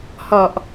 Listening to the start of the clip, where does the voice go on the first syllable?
low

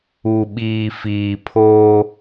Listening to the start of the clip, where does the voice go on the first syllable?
low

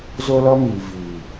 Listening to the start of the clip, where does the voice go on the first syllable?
high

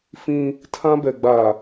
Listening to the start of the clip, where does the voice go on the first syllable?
high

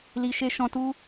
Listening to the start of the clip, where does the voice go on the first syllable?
low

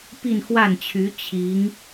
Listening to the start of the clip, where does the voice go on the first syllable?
falling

